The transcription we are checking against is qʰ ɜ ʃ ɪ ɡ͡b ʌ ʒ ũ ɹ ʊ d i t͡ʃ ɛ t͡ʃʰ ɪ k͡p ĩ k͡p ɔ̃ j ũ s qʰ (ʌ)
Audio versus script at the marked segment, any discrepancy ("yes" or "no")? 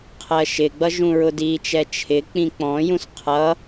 no